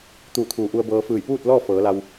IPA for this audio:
t̪ uː˧˩ t̪ʰ uː˩˧ ʔ u˧ ə̯ b ɤː˧ f ɯː˧˩ j p uː˥˨ t̚ l ɔː˥˨ f ɤː˩˧ l a˧ w

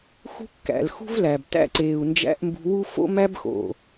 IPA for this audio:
x ṳ˦ kː æ̰˨ l x ṳ˦ v l æː˨ b t æ̰˧ ǀ eː˨ u̯ n d͡ʒ æ̰˧ ʔ m b ṳ˧ w u˦ f o̰˦ m æ˦ b x o̰˨

